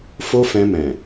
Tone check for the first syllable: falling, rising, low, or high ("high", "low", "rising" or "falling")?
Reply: high